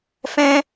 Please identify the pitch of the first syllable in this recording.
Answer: high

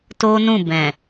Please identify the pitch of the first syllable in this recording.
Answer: high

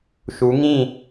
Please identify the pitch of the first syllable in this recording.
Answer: rising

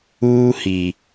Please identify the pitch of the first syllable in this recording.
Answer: high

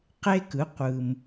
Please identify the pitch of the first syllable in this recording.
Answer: high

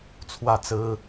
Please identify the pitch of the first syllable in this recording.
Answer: falling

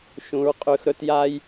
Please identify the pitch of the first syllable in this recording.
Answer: low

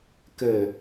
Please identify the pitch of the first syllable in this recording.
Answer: low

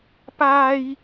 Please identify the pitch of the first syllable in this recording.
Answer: high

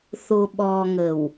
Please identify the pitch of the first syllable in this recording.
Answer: low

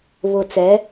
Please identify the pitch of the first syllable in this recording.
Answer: low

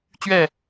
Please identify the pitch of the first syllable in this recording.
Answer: falling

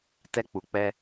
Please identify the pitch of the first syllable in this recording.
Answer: high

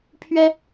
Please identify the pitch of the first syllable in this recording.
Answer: high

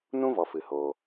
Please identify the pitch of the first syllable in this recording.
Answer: high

